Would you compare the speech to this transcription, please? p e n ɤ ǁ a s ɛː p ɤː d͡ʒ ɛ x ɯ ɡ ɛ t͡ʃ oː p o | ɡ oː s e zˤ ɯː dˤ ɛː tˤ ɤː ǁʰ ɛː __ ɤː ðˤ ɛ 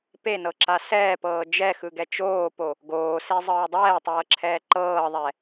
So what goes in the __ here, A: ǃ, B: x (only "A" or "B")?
A